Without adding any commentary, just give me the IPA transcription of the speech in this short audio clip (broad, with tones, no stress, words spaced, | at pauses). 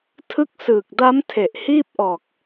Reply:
tʰɯ˦˥k̚sɯː˨˩k̚da˦˥m tʰe˨˩ʔhiː˥˩p̚ʔɔː˨˩k̚